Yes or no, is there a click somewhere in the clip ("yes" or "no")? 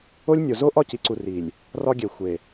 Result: yes